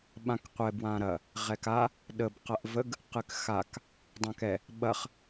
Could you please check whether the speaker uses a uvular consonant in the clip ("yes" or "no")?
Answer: yes